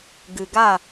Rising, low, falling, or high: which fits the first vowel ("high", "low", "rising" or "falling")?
low